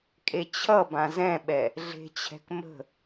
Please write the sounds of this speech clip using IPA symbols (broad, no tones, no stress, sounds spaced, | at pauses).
kʼ e t͡ɕʰ ʌ b ã z ɛ̃ ɓ ɛ | ɮ e̤ t͡ɕʰ ɛ̤ k m ə̤